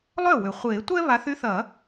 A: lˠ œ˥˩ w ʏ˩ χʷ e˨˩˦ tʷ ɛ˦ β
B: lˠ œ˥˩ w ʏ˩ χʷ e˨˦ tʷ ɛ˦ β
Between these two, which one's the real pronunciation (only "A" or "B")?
A